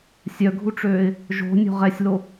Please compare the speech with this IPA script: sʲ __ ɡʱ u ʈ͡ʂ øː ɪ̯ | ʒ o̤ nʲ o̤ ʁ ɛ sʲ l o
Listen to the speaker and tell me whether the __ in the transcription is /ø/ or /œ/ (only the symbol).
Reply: œ